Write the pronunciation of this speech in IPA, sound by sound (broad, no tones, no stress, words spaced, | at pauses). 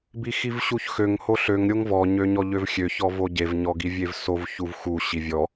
bixivɕuçxøŋ hoɬøŋ ɾʲoŋvɔ ɲøɲɔʎøvxʲø çɔvoɟev ɲɔɡivʲevsov çuvxu ɕivʲɔ